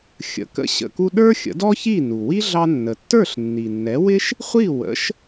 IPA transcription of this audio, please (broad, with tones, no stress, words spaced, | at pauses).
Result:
xʲə̰˩˥ kə̰˥˩ɕə̰˧ku˥ ɗə˞˥xʲə̰˩˥dɔ˥ çi˥˩nu˩wi˥ ɮɑ˧nːə˩tːə˞˥˩ɬ nːi˩nːɛ˩˥wɪ˥ʃ | χʷi˥˩wə̰˩˥ʃ